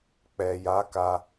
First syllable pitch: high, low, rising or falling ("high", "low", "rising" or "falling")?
low